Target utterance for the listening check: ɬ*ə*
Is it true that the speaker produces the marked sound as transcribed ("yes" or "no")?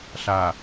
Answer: no